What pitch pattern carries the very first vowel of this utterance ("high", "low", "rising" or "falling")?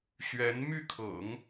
rising